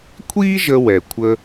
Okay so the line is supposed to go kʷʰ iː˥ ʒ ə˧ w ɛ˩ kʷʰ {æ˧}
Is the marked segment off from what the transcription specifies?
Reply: yes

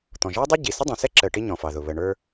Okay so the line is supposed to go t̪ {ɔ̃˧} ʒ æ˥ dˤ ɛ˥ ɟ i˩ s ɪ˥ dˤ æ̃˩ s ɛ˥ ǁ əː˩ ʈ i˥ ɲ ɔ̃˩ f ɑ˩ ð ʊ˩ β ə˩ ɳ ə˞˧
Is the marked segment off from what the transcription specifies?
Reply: yes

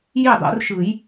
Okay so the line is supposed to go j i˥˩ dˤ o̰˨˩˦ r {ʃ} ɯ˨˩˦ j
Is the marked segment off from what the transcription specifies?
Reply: no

